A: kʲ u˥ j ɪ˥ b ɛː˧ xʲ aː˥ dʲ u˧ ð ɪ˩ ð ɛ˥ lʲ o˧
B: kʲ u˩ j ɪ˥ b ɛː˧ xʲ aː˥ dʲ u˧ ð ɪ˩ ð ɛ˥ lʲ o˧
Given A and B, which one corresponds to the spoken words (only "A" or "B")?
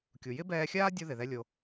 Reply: B